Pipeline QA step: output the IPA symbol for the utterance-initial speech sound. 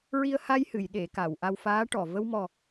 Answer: ɹ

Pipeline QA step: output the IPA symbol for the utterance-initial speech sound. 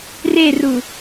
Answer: r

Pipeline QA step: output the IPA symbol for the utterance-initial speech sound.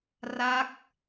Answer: r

